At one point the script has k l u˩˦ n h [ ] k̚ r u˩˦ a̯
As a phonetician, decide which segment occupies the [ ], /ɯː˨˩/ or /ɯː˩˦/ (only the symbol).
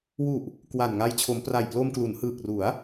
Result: ɯː˨˩